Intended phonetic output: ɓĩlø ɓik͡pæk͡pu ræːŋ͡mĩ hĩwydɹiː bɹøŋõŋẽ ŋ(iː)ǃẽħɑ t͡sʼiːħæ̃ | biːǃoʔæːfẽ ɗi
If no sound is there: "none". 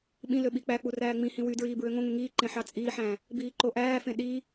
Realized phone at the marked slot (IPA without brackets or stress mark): iː